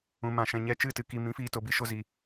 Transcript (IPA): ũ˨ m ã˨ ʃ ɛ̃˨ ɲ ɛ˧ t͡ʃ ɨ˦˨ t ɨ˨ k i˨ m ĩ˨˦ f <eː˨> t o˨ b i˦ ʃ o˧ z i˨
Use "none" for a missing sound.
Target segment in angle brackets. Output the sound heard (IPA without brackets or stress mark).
iː˨